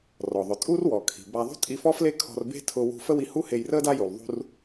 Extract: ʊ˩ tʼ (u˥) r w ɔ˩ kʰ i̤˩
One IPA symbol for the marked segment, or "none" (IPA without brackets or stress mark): u˥